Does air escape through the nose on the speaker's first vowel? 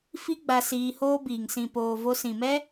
no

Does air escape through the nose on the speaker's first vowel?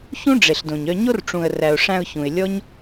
yes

